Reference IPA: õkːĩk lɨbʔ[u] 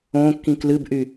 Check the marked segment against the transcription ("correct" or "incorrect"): incorrect